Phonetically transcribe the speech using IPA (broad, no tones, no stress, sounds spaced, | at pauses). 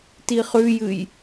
t i χ ʉ j ɨ j